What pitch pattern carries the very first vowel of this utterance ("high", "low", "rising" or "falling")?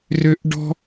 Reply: high